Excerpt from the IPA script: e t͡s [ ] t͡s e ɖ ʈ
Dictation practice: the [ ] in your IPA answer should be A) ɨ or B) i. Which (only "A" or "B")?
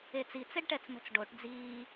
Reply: B